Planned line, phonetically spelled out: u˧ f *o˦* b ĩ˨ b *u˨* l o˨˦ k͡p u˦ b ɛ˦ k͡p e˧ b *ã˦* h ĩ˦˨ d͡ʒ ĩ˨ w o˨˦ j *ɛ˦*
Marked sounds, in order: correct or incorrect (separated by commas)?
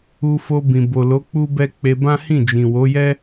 incorrect, incorrect, correct, correct